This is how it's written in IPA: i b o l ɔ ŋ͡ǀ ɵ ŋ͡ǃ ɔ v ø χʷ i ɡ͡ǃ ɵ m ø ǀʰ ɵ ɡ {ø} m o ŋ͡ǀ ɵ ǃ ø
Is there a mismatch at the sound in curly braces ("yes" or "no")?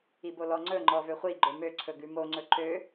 yes